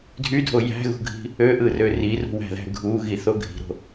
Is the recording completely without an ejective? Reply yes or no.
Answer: yes